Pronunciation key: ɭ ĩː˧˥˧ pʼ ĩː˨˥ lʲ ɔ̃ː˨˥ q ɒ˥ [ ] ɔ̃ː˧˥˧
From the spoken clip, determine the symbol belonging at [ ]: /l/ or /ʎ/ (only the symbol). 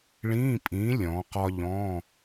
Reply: ʎ